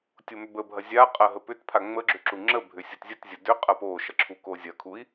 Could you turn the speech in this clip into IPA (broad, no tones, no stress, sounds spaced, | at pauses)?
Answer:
tʲ o m ʏ b ə bʱ ɐ zʲ a qʼ ɐ ɦ ə p ʏ t pʰ a ŋ͡m ə ɡ͡ǁ ʏ ǁ u ŋ͡ǁ ə bʱ ʏ sʲ o t zʲ ə t zʲ ə d ʏ qʼ ɐ p o ʃ ɐ ǁʰ u k o zʲ ɐ kʰ u i̯